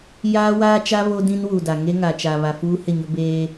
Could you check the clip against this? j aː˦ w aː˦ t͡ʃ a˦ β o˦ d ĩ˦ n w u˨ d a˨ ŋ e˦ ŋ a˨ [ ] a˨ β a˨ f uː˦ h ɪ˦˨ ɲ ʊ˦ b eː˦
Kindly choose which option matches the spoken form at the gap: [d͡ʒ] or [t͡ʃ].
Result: t͡ʃ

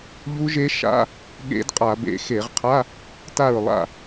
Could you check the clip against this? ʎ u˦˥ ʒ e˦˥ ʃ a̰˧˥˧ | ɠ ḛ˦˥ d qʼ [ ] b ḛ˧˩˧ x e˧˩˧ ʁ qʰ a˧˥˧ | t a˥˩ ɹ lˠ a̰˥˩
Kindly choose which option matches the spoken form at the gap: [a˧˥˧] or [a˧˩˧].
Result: a˧˩˧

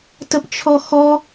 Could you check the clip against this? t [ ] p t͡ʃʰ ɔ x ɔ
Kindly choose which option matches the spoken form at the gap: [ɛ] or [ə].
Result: ə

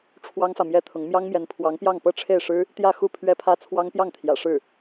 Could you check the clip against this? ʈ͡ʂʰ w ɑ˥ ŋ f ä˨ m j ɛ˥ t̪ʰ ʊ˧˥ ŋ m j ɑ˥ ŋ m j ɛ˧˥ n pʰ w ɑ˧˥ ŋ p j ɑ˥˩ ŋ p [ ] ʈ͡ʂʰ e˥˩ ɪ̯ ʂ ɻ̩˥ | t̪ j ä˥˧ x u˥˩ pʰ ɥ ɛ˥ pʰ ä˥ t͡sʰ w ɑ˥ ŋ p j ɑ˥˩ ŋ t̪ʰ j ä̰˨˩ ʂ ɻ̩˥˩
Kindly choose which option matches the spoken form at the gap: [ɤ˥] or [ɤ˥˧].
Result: ɤ˥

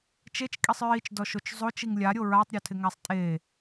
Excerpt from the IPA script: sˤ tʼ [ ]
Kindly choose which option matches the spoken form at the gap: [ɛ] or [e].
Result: e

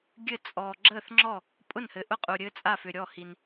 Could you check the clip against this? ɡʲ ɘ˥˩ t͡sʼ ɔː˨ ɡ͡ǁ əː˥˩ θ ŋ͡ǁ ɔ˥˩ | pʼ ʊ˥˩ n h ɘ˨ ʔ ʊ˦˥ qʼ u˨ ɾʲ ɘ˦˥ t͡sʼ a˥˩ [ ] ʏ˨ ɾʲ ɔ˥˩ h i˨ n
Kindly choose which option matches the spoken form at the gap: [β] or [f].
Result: f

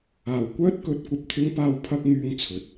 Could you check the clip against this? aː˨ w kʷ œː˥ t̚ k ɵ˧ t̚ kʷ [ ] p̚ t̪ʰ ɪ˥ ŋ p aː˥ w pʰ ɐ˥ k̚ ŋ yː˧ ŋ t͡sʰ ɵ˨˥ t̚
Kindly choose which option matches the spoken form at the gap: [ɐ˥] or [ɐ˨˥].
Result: ɐ˥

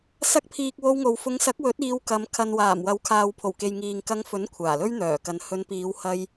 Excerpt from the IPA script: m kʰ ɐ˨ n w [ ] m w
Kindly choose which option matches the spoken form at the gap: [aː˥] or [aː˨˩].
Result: aː˨˩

